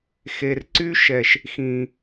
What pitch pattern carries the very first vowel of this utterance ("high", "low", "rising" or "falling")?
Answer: low